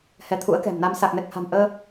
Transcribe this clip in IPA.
h ɛ˨˦ t̪ʰ ṵ˧˥ ə̯ k ɛ̤˨˩ m n a˧ m s a˨˩ k̚ n ɛ˨˩ k̚ h a̤˨˩ m ʔ əː˧

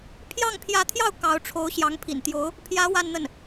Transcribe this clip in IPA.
pʰ j ɑ˥˩ ŋ pʰ j ä˧˥ t̪ʰ j ɑ˥˩ ʊ̯ k ɑ˧˥ ʊ̯ ʈ͡ʂʰ o˧˥ ʊ̯ ɕ j ɑ˧˥ ŋ pʰ ḭ˨˩ n t̪ j o˧˥ ʊ̯ | pʰ j ä˧˥ w a˥˧ n n̪ ə˥˩ n

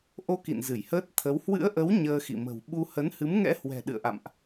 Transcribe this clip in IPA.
ʔ o˧ k ḭ˧˨ n z ɨ˧˩ j h əː˦˥ t̚ t̪ʰ ə˨˦ w h w ɨ̰˧˥ ə̯ ʔ ə˨˦ w ɲ əː˧ x ḭ˧˨ m ə̤˨˩ w ɓ u˧ h ə˨˦ n h ɨ˨˦ m ŋ ɛ̰˧˥ h w ɛ̤˨˩ ɗ ɨ̰˧˨ ə̯ ʔ a̰˧˨ m ʔ

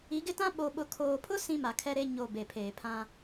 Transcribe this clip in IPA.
i˨˦ ɡ ɪ˦ t ã˦ ɓ o˨ ɓ ʊ˨ kʰ oː˨ pʰ ʊ˦ s ĩ˦ m a˨ kʰ ɛ˦ ɾ e˦ ɲ o˦˨ b e˨ pʰ eː˨ pʰ ã˦

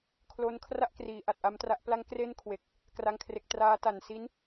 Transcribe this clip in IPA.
kʰ l o˦˥ n kʰ r a˥˩ ʔ k r iː˩˦ ʔ a˨˩ t̚ ʔ a˦˥ m t r a˦˥ ʔ p l a˦˥ ŋ k r e˥˩ n kʰ w e˨˩ k̚ | k r a˥˩ ŋ kʰ r e˦˥ k̚ t r aː˦˥ t a˨˩ n s i˦˥ n

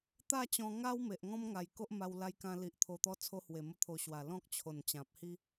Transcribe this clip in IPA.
t̪ a˥˧ t͡ɕ ɔ̃˧ ŋ a˦ w m e˨ ʔ ŋ ɔ̃˦ m ŋ a˨˩ j k o˦ ʔ m a˧ w l a˧ j k ã˧ l i˨ ʔ t̪ʰ o˧ t̪ ɔ˦ t͡sʰ o˧ h w e˨˩ m ə˧ t̪ʰ o˨˩ ɕ w a˨˩ l ɔ̃˦ k̚ t͡ɕʰ o˨˩ n t͡ɕ ã˨ p̚ h i˦

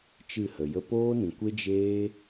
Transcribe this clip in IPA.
t͡ʃ ɨ˦˨ h ə˨ j ə˦ p oː˦ n ĩ˨ kʷ e˦ d͡ʒ eː˦

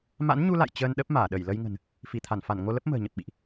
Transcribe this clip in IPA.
m a̰˧˥ n ɲ u˧ l a̰˧˨ j t͡ɕ əː˧ n ɗ ə˦˥ p̚ m aː˧˩ ɗ ə˧˩ j l ə˧ j ŋ ə̤˨˩ n | f i˧˩ t̪ʰ a˧˩ n f a˧˩ n ŋ o˧ l ə˦˥ p̚ m ə̤ː˨˩ ɲ ə˨˩ p̚ ɓ ḭ˧˨ ʔ

